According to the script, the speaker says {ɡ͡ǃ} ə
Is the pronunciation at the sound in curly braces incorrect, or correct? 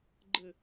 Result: correct